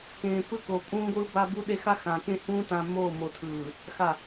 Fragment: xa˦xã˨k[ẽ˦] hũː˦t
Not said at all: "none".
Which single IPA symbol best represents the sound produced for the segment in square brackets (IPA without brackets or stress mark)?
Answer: ẽ˦